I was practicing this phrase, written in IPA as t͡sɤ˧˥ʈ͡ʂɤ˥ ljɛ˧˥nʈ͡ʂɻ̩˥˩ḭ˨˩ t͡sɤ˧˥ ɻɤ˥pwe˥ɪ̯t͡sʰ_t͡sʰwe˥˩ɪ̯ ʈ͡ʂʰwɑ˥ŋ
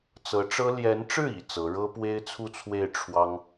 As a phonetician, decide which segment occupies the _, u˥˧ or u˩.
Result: u˥˧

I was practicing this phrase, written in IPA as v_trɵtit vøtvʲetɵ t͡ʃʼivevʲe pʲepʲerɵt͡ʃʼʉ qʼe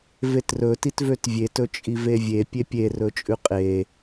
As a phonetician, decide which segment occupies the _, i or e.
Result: e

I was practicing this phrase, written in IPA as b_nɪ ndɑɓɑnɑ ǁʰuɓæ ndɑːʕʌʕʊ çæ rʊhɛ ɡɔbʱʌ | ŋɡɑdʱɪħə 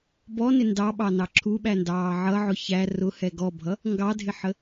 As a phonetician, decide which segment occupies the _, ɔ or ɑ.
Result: ɔ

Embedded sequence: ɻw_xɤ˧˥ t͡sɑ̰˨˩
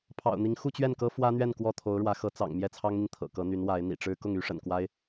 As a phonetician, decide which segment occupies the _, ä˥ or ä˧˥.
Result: ä˧˥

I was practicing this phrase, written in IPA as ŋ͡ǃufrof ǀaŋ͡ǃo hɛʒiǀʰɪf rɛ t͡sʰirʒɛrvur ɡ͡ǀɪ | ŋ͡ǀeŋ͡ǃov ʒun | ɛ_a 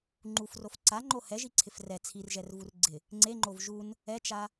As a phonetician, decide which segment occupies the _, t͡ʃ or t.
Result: t͡ʃ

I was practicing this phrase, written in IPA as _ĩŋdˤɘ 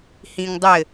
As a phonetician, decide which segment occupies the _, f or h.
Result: h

